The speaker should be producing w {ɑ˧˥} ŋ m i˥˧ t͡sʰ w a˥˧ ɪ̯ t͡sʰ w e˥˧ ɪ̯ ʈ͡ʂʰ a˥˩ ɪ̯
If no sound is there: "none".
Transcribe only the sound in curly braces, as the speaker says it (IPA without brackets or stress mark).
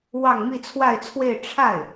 ɑ˥˧